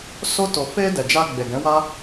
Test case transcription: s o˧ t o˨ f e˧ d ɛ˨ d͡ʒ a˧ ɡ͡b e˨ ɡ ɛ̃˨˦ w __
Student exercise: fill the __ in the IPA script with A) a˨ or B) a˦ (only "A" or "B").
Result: B